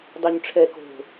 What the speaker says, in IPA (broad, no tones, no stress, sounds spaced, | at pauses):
dˤ y ɲ ʈ͡ʂʰ ɛ k o̤